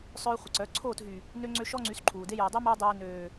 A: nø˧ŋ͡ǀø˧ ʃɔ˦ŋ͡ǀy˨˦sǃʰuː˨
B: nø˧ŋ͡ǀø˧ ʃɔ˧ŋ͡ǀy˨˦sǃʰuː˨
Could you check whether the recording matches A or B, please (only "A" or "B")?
A